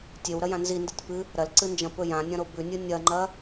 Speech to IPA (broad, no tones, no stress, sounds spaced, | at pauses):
tʲ e w ɾ ɐ j ã n z i n d i tʲ p ɨ | ɾ ɐ l ǀ ɨ n d͡ʒ ɐ̃ p ɵ j ã nʲ ɐ̃ ɾ o b ʉ nʲ ɨ nʲ ɐ ŋ͡ǃ ɐ